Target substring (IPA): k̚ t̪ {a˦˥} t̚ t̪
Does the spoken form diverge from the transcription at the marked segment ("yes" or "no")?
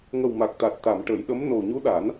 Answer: yes